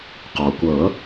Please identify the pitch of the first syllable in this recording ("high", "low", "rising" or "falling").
low